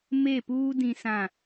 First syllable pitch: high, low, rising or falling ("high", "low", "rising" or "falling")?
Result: falling